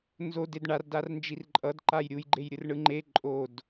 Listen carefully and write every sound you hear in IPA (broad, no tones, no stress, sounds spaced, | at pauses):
n z o d e d ɳ a r d a r n d͡ʒ i r ǃʼ ʌ d ǃ a j ɾʲ u j ɡ͡ǃ e j ɾʲ ɯ r ɳ ɯ ŋ͡ǃ e ǃʼ o d